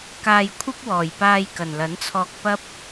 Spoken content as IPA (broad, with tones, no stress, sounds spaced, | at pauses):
k aː˧ j kʷʰ ɐ˥ p̚ w ɔː˨˩ j p aː˧ j k ɐ˨˩ n l ɐ˨˥ n t͡sʰ ɔː˧ k̚ p ɐ˥ p̚